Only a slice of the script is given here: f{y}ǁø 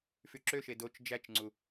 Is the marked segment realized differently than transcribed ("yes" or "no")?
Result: no